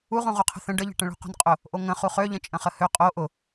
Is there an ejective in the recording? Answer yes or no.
yes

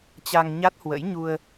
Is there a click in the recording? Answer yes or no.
no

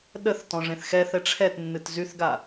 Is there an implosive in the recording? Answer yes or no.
yes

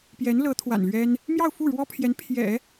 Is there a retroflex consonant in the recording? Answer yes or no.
yes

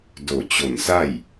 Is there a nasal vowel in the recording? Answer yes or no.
no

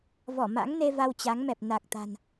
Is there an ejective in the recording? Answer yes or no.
no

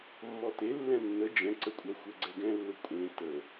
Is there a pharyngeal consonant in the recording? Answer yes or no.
no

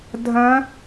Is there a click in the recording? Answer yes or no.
no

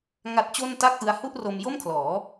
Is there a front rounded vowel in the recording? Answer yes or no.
no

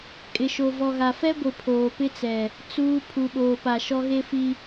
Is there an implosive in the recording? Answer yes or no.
yes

